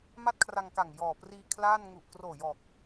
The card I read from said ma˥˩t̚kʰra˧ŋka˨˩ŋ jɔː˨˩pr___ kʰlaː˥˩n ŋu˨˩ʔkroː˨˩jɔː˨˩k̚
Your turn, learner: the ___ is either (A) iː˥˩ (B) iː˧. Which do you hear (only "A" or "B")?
B